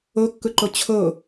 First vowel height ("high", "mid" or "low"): mid